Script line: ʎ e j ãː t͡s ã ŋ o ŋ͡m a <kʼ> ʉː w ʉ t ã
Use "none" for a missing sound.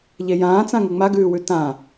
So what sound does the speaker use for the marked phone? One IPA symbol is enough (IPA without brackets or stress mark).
ɡ